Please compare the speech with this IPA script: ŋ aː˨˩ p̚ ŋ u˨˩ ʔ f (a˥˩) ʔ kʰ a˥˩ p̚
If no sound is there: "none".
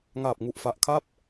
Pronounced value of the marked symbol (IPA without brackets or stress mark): a˨˩